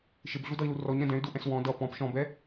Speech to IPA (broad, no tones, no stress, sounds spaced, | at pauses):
ʃ ɪ b ɮ u d ʌ i̯ l u r ɔ ɲ ɾ ɛ̃ d ɛ̃ y̯ d u ʔ ɛ̃ s w ɔ̃ d ʌ p ɔ̃ p ʃ ɔ̃ b ɛ